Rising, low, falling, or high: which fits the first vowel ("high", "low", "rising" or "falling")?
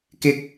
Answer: high